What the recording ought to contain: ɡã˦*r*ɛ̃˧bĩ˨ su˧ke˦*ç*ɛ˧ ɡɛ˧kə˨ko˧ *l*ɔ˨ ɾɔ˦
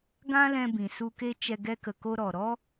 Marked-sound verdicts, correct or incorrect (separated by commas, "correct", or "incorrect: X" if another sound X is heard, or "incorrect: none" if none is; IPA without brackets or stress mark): incorrect: l, incorrect: t͡ʃ, incorrect: ɾ